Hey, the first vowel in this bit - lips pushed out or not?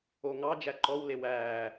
yes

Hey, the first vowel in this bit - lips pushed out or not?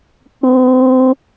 yes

